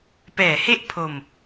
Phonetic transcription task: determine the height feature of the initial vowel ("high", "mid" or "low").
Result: mid